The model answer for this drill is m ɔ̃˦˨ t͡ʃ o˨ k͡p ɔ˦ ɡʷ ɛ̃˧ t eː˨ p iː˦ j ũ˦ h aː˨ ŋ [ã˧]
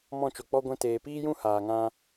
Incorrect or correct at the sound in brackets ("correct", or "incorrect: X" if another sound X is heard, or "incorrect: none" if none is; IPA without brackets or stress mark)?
incorrect: ã˦